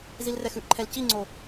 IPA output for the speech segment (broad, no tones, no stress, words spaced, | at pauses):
zilrɛxʉʔǃʰɛl ciŋ͡ǀo